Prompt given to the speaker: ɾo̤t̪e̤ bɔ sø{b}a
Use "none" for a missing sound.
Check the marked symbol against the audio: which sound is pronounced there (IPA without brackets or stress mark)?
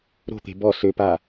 p